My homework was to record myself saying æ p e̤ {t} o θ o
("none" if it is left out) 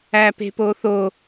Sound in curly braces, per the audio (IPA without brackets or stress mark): p